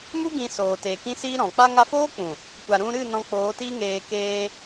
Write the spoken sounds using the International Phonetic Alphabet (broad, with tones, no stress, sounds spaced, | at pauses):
m u˦ ɡ ĩ˧ s oː˨ t eː˨ k ĩ˦ s iː˦ ɾ ɔ̃˨ k͡p a˧ ŋ a˧ f oː˦ k͡p ũ˨ | kʷ a˨ ɾ ũ˧ ɾ ɨ˦˨ n ɔ̃˧ k͡p oː˨˦ t i˦ ŋ eː˧ k eː˧